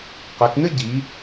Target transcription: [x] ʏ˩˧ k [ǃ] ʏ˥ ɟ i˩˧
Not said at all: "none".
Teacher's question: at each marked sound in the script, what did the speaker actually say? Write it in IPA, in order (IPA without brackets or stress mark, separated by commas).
q, n̪